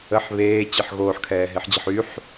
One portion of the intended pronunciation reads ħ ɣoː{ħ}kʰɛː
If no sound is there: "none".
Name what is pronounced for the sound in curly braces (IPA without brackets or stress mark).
ħ